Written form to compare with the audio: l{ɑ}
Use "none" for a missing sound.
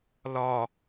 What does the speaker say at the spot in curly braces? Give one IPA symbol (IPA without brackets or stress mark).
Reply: ɒ